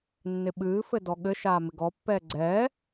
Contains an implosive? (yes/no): yes